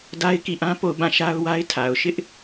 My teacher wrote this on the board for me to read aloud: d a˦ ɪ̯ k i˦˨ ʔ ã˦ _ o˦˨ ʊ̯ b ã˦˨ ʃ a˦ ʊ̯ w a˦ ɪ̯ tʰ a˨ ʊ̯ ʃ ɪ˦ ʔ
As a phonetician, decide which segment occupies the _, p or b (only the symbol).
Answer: p